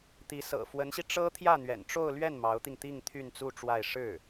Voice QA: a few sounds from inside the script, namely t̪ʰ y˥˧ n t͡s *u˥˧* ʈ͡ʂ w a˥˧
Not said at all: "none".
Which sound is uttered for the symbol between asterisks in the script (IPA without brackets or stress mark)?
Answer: u˥˧